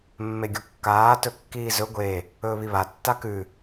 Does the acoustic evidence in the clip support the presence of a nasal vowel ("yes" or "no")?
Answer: no